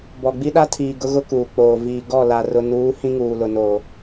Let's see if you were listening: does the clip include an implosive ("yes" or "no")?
yes